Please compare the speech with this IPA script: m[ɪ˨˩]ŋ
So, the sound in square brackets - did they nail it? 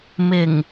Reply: yes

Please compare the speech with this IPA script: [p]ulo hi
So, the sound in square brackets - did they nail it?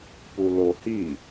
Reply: yes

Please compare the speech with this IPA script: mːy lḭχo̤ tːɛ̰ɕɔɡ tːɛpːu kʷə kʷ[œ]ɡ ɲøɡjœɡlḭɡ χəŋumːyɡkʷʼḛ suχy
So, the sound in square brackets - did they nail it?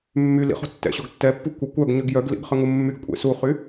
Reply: yes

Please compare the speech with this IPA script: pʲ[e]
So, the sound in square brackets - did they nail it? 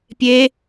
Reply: yes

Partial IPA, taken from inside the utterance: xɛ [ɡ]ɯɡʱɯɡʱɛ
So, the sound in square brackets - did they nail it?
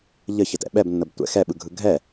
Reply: no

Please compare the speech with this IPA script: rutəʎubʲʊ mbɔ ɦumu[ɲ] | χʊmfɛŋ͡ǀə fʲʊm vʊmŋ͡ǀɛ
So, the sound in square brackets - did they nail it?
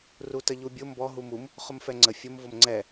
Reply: no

